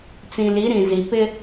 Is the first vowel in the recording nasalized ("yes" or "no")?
yes